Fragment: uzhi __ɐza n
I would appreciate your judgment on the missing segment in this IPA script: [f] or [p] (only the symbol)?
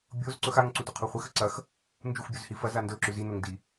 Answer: f